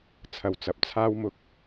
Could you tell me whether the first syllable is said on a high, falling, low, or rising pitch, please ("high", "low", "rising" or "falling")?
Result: low